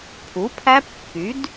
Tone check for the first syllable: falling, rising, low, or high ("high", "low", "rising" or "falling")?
rising